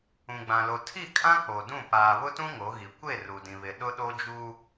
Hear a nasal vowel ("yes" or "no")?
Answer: yes